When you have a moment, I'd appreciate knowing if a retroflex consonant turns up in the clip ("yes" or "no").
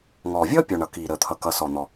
yes